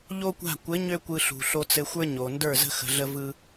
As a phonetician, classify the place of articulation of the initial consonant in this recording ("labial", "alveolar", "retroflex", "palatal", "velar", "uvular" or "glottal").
palatal